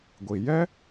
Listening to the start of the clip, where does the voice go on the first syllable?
low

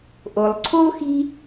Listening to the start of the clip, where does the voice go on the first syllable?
low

